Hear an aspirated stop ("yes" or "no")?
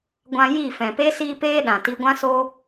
no